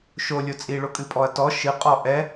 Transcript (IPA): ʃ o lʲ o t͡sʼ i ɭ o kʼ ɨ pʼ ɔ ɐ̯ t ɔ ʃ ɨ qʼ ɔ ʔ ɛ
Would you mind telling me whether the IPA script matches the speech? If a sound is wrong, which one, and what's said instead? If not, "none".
none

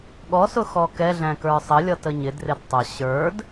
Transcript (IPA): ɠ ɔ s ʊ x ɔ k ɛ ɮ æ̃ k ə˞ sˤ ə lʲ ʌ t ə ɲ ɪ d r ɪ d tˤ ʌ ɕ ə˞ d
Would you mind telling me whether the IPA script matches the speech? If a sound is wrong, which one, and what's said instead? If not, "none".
none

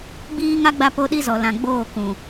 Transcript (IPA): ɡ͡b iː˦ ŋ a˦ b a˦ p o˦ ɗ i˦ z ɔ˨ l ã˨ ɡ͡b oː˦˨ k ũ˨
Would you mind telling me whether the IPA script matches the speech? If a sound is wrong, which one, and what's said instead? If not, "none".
b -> ɡ͡b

